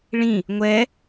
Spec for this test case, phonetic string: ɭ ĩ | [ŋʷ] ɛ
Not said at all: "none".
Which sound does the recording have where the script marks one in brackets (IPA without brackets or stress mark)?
ŋʷ